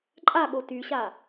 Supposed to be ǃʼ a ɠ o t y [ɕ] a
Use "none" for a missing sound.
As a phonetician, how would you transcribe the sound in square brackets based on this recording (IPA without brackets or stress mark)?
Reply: ɕ